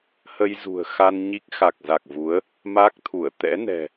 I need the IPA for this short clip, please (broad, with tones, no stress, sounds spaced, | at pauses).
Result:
h ə˧ j z ṳ˨˩ ə̯ x a˧ n ɲ i˦˥ k̚ x a˨˩ k̚ z a˨˩ k̚ v u˨˦ ə̯ | m a˦˥ k̚ t̪ʰ u˧˩ ə̯ t̪ ɛ̰˧˥ n ɛ̤˨˩